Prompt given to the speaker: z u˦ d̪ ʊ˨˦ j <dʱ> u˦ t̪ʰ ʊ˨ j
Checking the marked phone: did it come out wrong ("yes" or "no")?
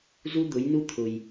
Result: yes